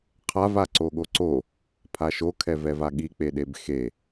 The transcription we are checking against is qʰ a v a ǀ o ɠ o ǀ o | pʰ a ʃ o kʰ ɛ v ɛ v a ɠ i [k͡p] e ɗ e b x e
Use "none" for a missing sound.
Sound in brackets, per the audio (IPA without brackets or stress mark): k͡p